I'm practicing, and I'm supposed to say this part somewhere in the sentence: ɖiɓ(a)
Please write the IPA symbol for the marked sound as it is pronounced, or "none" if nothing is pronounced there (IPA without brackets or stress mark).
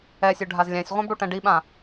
ã